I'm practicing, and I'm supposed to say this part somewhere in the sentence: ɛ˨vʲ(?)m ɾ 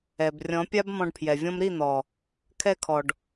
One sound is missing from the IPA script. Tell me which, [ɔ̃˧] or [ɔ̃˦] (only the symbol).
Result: ɔ̃˦